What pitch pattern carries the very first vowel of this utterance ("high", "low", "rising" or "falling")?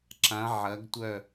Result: rising